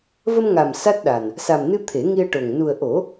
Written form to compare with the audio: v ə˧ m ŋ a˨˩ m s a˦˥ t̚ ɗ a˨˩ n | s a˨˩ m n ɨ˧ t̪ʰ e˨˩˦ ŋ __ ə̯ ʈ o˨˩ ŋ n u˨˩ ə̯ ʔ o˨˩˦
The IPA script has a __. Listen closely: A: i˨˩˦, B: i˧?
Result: B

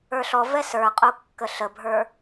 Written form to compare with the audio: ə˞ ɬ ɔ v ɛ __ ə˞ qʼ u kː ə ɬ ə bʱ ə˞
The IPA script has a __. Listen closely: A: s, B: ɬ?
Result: A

